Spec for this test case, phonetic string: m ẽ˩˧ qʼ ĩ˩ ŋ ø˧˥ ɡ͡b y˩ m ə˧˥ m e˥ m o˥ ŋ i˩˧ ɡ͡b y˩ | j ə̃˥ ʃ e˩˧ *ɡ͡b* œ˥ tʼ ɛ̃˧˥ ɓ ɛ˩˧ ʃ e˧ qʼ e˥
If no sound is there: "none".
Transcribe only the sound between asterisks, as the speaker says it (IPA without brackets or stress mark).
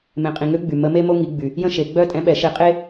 ɡ͡b